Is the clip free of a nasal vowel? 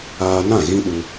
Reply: no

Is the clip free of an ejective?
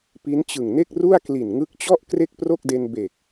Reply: yes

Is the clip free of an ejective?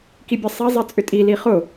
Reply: no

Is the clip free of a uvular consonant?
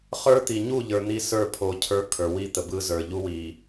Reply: no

